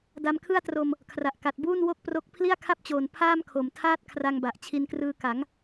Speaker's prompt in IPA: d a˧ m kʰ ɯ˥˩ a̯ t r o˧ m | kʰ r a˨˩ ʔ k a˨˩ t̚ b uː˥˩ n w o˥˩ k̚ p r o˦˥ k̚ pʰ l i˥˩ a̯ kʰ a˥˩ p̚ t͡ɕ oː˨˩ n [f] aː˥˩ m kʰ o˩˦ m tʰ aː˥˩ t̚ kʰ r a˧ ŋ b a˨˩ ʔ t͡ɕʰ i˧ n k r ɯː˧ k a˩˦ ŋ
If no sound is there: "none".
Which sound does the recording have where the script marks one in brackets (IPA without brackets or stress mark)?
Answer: pʰ